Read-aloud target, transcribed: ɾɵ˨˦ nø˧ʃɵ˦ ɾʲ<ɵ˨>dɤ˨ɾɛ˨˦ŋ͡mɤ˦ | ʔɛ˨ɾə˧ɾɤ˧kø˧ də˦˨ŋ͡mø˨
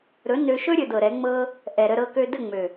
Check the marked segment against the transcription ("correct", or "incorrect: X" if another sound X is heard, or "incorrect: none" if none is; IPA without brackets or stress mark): incorrect: ɵ˧